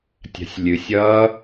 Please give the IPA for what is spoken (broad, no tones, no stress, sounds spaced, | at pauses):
tʲ a̤ sʲ lʲ ɨ sʲ ʌ